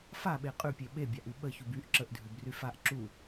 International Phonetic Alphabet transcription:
f a ɓ e qʼ ʉ pʲ e ɓ e bʲ a ʔ y ɓ ə ç u b y ʔ ǁ ə ʔ dʱ ʉ b r y f a ʔ ǁ u

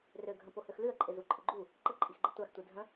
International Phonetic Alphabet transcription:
r ø ɡʱ ə̃ p o h ø x l ʉ ə̯ ǃʼ ɪ z u ǃʼ ɪ ɡ͡ǃ u | ǃ ə ǃʼ i x ɡ͡ǃ ə tʷ a x tʷ i dʱ ə̃

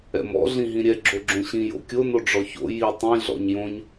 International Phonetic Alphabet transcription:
ɛ̰ m ɔ̰ ɮ ĩ ɦ ĩ ɾʲ ɛ ɡ͡ǁ o ɡ͡ǁ õ ɕ ĩ j o̰ kʲ o n o ɖ͡ʐ ɔ ç o̰ j i tˤ ĩ ɮ ɔ̰ ɲ j õ ɲ

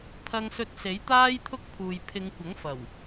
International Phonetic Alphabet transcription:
pʰ ɐ˧ ŋ s ɵ˧ t̚ s e˨˥ j t̪ aː˥ j t̪ʰ ʊ˥ k̚ pʰ uː˨ j pʰ ɪ˨˧ ŋ kʷ ɐ˨˥ ŋ f ɐ˨˩ w

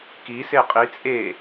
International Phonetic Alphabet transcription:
k i s e qʼ i t͡sʼ e

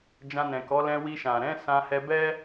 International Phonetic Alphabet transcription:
d͡ʒ ã˧ n ɛ̃˨ k ɔ˨˦ l ɛ̃˧ w i˧ ʃ ã˨ ɾ ɛ̃˨˦ s ã˧ h ɛ˧ b ɛ˦

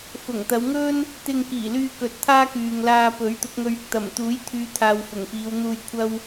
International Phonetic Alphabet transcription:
f ʊ˨˩ ŋ t̪ ɐ˨˧ w ŋ ɵ˥ n | t̪ ɪ˧ ŋ k iː˨˩ l yː˧ k ɵ˨ t̚ t̪ʰ aː˥ k yː˨ ŋ l aː˧ p ɵ˨˥ ɥ t̪ ʊ˨˥ k̚ ŋ ɵ˧ ɥ ɪ˧ k̚ t̪ ɐ˨˩ m t̪ uː˨˥ j t̪ʰ yː˨˧ t̪ʰ aː˨ w f ʊ˨˩ ŋ f iː˨˧ w n̪ uː˧ j kʷʰ ɐ˥ w

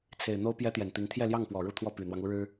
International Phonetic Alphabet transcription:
t͡sʰ e˨˩ ɪ̯ n̪ o˥ ʊ̯ p j ɛ˥ t̪ j ɛ˨˩ n t̪ i˧˥ ŋ t̪ʰ j ɛ˥˧ l j ɑ˥˩ ŋ p w ɔ˨˩ ɻ u˥˧ t̪ʰ w ɔ˥˩ p y˨˩ n̪ w ɑ˦ ŋ u˧˥ ɻ ɻ̩˥

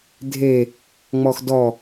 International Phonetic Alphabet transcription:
dʱ e | ŋ͡m ɔ x d ɔ

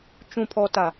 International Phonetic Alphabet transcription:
t͡ʃ ũ˨ pʰ ɔ˨ t a˨

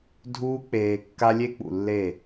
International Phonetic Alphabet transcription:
dʱ uː˦ k͡p eː˧ kː a˦ lʲ e˦ k͡p ṵ˨ lː e˦˨

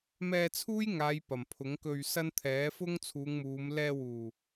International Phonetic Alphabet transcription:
m ɛː˧ t͡sʰ uː˥ j ŋ aː˨˧ j p ɐ˨˩ m pʰ ʊ˨˥ ŋ k ɵ˧ ɥ s ɐ˥ n t̪ʰ ɛː˨˥ f ʊ˥ ŋ t͡sʰ uː˨˧ ŋ m uː˨˧ m l ɛː˧ w uː˨˩

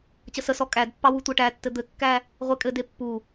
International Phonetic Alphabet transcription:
t͡ɕ ə s ə s ɔ kʼ æ d pː ɑ w u tʷ æ ʈ æ tː ɘ d̪ ɘ kː æ | ʁʷ e kʼ ɘ d e pː u

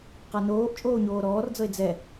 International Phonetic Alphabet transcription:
q a n oː ʔ t͡ʃʼ oː ɲ oː ɾ ɔː r d͡z ɤ e̯ d͡z ɛ

